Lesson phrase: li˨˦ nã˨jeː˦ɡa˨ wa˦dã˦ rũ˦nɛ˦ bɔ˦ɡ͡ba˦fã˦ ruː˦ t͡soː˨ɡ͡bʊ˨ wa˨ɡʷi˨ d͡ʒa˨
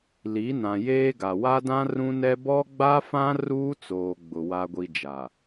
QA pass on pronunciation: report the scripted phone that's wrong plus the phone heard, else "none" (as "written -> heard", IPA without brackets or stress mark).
none